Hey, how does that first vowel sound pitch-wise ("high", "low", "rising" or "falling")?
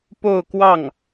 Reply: falling